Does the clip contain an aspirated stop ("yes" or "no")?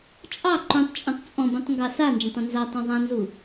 no